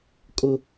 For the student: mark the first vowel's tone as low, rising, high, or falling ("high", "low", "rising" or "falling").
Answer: high